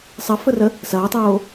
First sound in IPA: sˤ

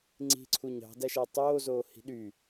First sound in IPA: ŋ͡ǀ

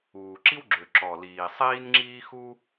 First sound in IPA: uː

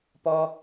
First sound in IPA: p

